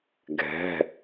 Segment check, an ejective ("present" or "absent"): absent